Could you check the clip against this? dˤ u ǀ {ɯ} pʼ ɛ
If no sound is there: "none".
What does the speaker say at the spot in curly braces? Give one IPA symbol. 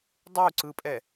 ɯ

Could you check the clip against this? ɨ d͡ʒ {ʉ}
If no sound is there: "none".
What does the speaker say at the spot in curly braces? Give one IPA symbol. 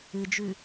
ʉ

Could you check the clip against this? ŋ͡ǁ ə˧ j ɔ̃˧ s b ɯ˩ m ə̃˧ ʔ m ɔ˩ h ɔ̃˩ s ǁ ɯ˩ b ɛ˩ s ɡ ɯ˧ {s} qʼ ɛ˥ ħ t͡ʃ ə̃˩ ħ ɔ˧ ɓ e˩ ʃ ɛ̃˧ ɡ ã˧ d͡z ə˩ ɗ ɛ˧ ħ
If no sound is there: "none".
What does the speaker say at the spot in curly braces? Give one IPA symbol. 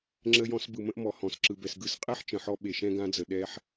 s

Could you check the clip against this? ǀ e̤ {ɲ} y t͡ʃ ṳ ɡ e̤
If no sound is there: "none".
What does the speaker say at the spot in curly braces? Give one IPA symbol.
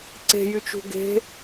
j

